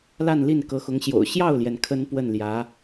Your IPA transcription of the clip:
la˥˧nli˥˩n kɤ˧˥xʊ˧˥ŋɕjo̰˨˩ʊ̯ ɕjɑ˥˩ʊ̯ljɛ˩n kʰə˥npwə˥˩nljä˧˥

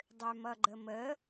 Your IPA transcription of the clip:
dˤømʌɡ͡ǃəmə

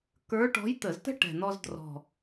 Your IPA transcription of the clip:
kə˞˧˥ʈɔ̤˧˥jt̪ə˧˩˧ztə̤˥ ʈɛ̤˨˩n̪ɔ˧zdrɔ̤˨˩

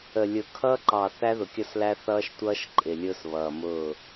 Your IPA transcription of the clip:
ə˨ lʲʊ˨kʰʌː˦ǃɑ˨ θæ˦ðʊ˨kʲʌ˦˨slæ˦ θʌː˦ʃtʷʌː˦ʃ ǃʼɪ˨lʲʊː˦sβʌː˨mʊː˦˨

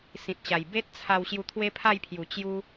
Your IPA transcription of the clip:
sĩ˨t̚ɕa˨˩j be˦t̚t͡sʰa˧w ɕju˧t̪ʰwe˦pʰa˥˧jpʰju˨˩ t͡ɕju˧

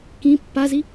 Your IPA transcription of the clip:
kĩ pːazi

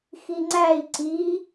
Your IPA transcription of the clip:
xiŋ͡ǀæi̯ ǀi

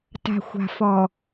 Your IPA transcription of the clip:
ta̤˨xʷa̤˨ fɔ˨

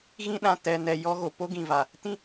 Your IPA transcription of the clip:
ɣĩ˦ɗã˨ tɛ˨ nɛ˨ jɔ˦ɣo˨ po˦ɡĩ˨va˨ | tĩ˦

